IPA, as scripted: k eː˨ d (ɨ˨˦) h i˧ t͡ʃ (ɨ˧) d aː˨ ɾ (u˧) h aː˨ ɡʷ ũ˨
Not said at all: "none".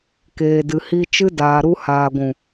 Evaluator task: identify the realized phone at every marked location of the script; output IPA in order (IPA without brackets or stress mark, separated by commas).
ɨ˨, ɨ˧, u˧